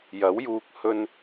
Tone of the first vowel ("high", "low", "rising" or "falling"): rising